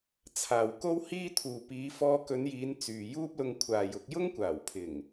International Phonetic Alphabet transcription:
t͡sʰ aː˨ w k o˥ w h iː˥ t̪ʰ uː˨ p iː˨˧ f ɔː˧ k ɵ˨˧ n j iː˨˧ n t͡s yː˨ j uː˥ p̚ l ʊ˧ ŋ kʷʰ aː˨ j ʊ˧ k̚ j ʊ˥ ŋ kʷ aː˨˩ w pʰ ɪ˨˩ ŋ

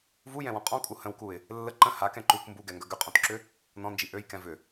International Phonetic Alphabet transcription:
v u j ɛ̃ w ɔ̃ qʼ ɔ̃ kʼ u h ə̃ w k u ɪ̯ | lː ə ǃ ə̃ h a k ɛ̃ ǃ u k m b u ɡ ɛ ŋ ɡ œ ɡ ʏ qʼ ɔ̃ t ǁ ʏ | n ɔ̃ n d͡ʒ i ʔ ø j k ɛ̃ v ʏ

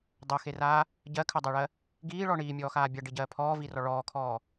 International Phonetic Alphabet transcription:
dˤ ɜ x e r aː | ɟ ɜ kʰ ɜ dˤ ɜ ɭ ɜ | ɡ iː ɭ ɔ ɳ iː mʲ ɔː x aː bʲ a ɖ i ɟ ɜː pʰ ɔː v i r ɔ ɭ ɔː kʰ ɔː

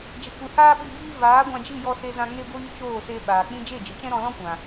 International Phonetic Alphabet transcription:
d͡ʒ ə˨ kʷ ɨ˨ h aː˦ ɓ i˧ b iː˦ v aː˨˦ ɡʷ ã˧ d͡ʒ ɨ˦˨ j ɔ˦ s e˦ z ã˦ ŋ e˧ ɡʷ iː˧ t͡ʃ oː˦˨ s e˧ ɓ aː˨ k͡p ĩ˦ d͡ʒ e˦˨ d͡ʒ ɨ˨ t͡ʃ ɛ̃˦ ɾ ɔ̃˧ l ɔ̃˦ kʷ ã˨

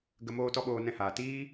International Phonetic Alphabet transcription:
ɡ ə˨ m oː˧ t ɔ˧ ɓ oː˨ n ɛ̃˧ h aː˨ t iː˦

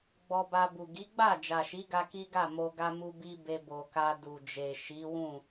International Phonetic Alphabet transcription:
ɡ͡b ɔ˧ b a˧ b u˨ ɡ i˨˦ ɡ͡b a˦˨ d͡ʒ a˨ ʃ i˨˦ ɡ a˧ k i˦ ɡ a˦˨ m o˧ ɡ a˧ m u˧ b i˦ b e˧ b o˨ k a˧ d u˨ d͡ʒ e˨ ʃ i˨˦ w ũ˦˨

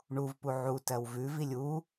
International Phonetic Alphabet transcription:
ɳ u v p u ʕ u t ɜ w v ʉ v i lʲ u

